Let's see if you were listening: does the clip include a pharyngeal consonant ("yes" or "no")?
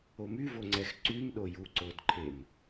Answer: no